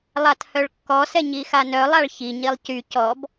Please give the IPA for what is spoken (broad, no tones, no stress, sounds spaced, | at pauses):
lˠ a t h œ ɭ kː ɔ s ɛ ɲ i x a n œ lˠ a ɭ ç i ɲ i lˠ c y c ɔ b